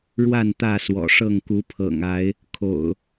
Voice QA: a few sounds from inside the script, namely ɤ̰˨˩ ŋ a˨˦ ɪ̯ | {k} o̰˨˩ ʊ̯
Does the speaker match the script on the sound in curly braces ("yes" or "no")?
no